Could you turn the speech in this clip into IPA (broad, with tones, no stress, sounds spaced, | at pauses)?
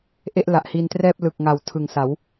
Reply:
ʔ e˥˩ ʔ l a˨˩ ʔ h i˧ n t r ɛː˥˩ p̚ l ɯ˨˩ k̚ ŋ a˩˦ w tʰ ɯ˨˩ ŋ s a˩˦ w